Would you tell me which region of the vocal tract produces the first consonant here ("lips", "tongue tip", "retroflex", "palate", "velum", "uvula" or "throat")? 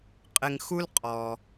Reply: uvula